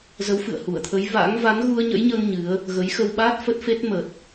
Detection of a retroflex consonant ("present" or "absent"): absent